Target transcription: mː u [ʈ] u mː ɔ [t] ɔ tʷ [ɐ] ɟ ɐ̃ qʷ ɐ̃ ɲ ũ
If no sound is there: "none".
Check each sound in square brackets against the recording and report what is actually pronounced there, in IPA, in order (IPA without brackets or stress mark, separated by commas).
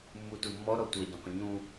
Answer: t, ɾ, ɐ